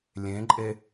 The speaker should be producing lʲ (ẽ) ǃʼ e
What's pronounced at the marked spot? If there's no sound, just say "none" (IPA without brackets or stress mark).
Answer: ẽ